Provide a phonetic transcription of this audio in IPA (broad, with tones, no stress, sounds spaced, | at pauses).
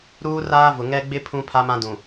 ɾ uː˦ r aː˦ v ʊ˨ ŋ ɛ˦ ɡ͡b ɪ˦ pʰ ũ˦ pʰ a˦ m ã˦ d ũ˨